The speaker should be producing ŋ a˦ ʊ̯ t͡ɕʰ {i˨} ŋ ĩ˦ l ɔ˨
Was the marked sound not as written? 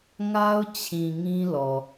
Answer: yes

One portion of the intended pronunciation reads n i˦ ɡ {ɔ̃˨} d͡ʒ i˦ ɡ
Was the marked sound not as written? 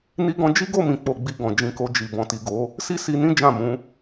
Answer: yes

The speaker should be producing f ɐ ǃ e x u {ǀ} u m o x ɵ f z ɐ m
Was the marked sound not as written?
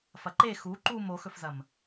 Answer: yes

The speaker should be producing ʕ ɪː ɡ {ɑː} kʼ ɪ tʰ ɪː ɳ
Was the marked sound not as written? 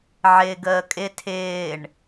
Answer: yes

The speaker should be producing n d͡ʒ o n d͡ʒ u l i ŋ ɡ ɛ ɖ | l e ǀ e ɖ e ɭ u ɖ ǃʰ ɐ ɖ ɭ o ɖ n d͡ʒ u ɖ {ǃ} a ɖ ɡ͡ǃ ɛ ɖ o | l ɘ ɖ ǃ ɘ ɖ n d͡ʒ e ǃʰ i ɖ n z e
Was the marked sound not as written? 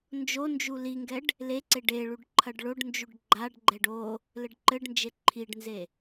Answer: yes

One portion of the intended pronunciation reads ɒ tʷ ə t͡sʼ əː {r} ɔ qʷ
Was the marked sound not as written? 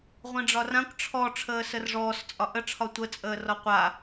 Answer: no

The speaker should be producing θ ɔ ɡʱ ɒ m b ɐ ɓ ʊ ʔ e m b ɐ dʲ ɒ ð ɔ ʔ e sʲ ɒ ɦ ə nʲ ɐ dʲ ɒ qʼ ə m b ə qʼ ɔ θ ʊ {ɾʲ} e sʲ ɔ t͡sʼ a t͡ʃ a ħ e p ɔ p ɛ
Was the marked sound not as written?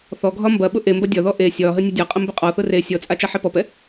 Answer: yes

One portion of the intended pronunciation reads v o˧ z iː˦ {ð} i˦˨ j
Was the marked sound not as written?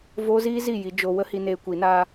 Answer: yes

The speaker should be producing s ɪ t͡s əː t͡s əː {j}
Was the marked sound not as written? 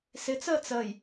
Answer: no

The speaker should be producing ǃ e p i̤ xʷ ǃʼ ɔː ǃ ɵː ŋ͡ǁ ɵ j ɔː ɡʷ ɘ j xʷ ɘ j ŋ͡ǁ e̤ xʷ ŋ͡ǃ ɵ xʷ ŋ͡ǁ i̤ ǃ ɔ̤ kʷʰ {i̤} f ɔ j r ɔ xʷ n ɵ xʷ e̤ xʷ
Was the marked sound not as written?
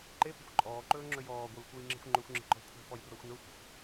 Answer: no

